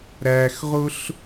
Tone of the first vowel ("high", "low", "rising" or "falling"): low